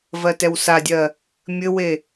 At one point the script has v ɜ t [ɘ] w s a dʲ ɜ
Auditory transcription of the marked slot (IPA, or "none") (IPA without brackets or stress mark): ɛ